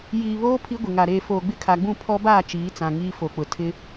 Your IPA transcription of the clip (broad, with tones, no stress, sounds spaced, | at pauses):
j iː˨ β oː˦ pʰ i˦ ɡʷ ɪ˨ ŋ a˨ ɾ eː˨ f oː˨ ɡ͡b ɪ˦ kʰ a˨ ɡ͡b ũ˦˨ pʰ ɔ˦ b aː˦˨ t͡ʃ iː˨˦ t͡s ã˨ ŋ iː˦ f o˨ k͡p ʊ˨ tʰ ɪ˦